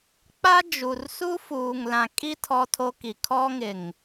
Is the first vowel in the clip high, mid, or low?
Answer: low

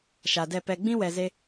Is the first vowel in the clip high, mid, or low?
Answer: low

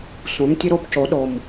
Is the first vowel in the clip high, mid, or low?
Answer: mid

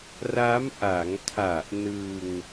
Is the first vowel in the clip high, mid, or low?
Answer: low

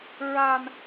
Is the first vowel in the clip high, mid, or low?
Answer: low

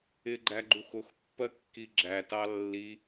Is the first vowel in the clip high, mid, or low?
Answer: high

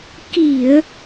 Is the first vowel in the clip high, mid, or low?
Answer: high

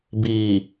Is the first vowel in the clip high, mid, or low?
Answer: high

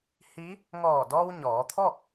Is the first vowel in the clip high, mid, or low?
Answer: high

